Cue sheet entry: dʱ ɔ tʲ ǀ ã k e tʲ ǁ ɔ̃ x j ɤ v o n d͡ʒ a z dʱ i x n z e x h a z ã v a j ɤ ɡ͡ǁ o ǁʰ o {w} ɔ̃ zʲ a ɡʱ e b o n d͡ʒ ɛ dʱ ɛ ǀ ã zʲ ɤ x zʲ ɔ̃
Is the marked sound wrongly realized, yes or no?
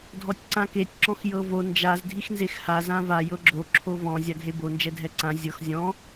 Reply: yes